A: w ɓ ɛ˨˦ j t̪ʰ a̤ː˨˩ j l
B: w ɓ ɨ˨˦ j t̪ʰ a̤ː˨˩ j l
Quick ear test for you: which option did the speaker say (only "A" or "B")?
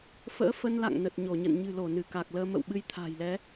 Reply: B